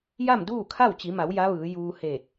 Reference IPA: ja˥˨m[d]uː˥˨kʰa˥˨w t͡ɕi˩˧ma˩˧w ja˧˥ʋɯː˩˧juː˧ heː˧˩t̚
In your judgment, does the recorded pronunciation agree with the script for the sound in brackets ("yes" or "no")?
yes